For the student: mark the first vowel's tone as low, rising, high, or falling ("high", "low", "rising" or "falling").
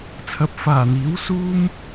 rising